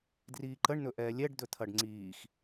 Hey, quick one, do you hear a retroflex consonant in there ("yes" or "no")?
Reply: yes